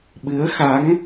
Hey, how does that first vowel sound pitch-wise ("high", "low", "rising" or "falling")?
rising